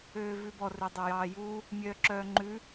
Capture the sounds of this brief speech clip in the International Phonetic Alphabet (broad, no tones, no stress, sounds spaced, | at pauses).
øː v ʉ b ɔ r ø dˤ o j ɑː j u | mʲ œː ǁ œː ŋ͡ǃ ʉ